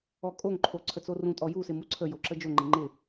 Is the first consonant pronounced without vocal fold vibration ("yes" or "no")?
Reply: yes